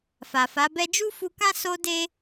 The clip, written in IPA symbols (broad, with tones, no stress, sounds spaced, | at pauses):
f a˨ f a˨˦ b ɛ˦ d͡ʒ u˦ f u˧ k ã˦ s o˦ d e˦